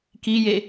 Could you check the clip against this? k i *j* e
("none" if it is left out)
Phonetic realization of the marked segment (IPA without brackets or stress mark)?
j